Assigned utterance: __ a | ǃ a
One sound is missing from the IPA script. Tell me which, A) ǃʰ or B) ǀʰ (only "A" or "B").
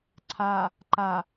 B